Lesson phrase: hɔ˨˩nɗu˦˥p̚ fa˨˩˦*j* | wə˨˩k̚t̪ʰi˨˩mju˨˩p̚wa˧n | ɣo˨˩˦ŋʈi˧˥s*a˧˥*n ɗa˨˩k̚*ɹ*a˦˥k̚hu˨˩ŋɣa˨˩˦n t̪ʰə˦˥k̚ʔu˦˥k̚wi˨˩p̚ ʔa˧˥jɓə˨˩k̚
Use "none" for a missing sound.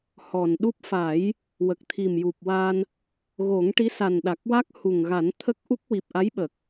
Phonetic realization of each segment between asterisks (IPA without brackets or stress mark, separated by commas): j, a˨˩, w